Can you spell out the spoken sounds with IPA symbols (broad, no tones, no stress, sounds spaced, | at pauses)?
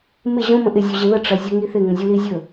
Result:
m ɪ ʑ õ m ə̃ ʔ ɪ zʲ u ʑ ɪ ð ə ʈ͡ʂ ɐ zʲ o ŋ i θ ɪ ŋ ə̃ zʲ u l i zʲ ɵ